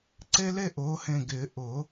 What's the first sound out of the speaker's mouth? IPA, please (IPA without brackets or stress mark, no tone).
ǀ